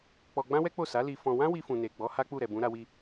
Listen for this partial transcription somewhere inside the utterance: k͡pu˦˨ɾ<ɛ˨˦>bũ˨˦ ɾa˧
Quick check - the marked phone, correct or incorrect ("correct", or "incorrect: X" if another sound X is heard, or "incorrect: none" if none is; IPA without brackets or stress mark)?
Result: incorrect: ɛ˨